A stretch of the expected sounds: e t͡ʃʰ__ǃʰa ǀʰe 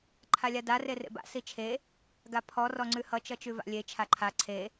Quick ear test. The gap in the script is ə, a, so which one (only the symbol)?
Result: a